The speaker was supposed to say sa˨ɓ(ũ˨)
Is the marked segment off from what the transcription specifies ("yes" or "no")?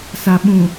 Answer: no